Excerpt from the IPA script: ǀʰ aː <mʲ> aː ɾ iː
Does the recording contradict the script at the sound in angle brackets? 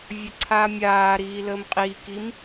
no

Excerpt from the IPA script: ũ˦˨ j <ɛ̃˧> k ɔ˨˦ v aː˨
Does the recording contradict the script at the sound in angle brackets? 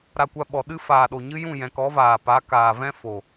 yes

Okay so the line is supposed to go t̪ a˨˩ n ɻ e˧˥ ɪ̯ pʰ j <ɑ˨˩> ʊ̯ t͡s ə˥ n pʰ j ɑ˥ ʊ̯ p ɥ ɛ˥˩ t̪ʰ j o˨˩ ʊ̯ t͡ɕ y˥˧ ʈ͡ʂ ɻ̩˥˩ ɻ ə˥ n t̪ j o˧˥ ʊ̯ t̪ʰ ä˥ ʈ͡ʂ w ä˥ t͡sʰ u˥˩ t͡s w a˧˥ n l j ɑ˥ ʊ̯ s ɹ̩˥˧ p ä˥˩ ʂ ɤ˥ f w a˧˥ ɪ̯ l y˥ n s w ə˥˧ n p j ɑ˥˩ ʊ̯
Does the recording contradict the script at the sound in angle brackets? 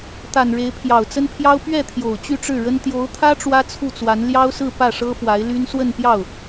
no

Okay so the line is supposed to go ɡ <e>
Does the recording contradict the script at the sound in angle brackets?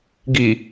yes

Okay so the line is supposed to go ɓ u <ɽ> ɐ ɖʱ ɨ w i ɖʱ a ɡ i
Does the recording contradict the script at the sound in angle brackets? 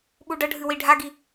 yes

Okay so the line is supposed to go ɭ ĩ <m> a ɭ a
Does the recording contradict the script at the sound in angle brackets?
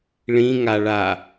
yes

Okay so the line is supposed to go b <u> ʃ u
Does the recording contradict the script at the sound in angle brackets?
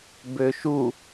yes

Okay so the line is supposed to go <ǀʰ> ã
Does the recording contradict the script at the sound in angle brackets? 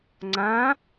yes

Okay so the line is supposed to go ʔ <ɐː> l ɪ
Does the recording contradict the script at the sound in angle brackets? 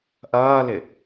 no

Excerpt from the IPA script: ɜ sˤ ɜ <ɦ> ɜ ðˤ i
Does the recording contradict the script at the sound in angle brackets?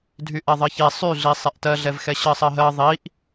no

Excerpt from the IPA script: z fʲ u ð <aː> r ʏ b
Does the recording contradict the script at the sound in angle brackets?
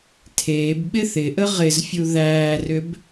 yes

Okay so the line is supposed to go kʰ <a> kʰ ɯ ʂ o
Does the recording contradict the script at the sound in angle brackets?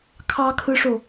yes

